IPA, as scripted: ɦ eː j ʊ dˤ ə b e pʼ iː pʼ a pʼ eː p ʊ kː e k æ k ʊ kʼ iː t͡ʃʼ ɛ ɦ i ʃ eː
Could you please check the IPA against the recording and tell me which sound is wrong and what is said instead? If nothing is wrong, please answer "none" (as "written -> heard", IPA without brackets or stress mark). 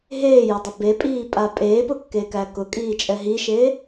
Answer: none